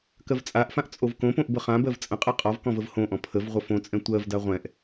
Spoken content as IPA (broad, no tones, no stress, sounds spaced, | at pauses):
k ɜ v t͡sʼ a ʔ f ã ʔ t͡sʼ o v k õ p õ ʔ b ə χ ã b ɜ v t͡sʼ ə̃ qʼ ɛ qʼ ɔ v k ɔ̃ v ə v h õ ʔ ɔ̃ pʰ ə v ʁʷ ə f õ t͡sʼ ɛ̃ tʷ ɜ v d a ʁʷ ɛ̃ ʔ